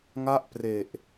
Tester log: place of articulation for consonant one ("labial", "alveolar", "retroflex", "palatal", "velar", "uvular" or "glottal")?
velar